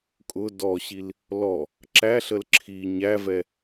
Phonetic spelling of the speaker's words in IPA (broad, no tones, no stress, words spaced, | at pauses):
kʼʊ dɔɕil | lɔ | ǁæɬəl ǁʰi ɲævɛ